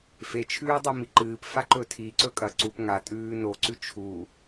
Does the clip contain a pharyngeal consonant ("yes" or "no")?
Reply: no